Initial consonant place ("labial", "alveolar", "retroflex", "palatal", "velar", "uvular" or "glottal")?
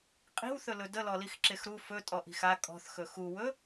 uvular